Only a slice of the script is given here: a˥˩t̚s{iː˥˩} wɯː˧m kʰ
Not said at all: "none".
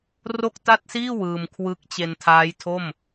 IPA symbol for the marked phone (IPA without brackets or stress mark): iː˥˩